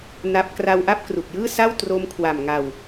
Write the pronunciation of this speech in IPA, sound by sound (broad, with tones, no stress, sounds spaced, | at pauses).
n a˦˥ p̚ k r a˧ w ʔ a˥˩ p̚ k r u˨˩ k̚ j ɯː˥˩ s a˥˩ w t r o˦˥ m kʰ w a˨˩ m ŋ a˨˩ w